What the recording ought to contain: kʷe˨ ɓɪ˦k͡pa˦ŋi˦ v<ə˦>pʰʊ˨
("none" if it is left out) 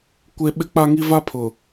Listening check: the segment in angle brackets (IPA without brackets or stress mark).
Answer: a˦